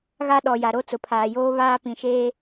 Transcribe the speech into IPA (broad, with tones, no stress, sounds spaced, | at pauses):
ɣ a˦ ɗ ɔ˨ j a˨ ɾ o˦ t͡s ʊ˨ pʰ aː˨ j oː˦ β aː˦ p ĩ˨ ʃ eː˦